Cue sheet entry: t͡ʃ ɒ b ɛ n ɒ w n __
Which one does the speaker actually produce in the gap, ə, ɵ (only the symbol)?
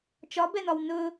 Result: ɵ